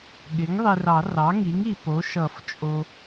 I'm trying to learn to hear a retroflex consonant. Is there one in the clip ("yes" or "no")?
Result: no